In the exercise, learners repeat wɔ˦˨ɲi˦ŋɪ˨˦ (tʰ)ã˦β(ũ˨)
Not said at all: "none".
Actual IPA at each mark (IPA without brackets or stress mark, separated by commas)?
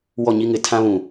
tʰ, ũ˨